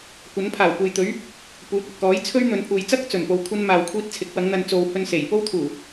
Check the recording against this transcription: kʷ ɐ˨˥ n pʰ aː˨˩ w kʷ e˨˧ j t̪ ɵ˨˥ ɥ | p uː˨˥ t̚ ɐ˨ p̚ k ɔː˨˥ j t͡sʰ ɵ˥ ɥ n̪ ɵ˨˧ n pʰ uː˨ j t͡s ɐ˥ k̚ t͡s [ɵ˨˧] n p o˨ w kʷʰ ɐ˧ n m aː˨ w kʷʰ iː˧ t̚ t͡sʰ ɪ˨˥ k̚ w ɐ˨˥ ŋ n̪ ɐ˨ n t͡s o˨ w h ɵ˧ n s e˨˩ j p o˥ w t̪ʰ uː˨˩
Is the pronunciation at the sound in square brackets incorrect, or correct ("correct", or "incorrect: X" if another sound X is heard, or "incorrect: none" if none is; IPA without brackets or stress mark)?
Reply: incorrect: ɵ˨˩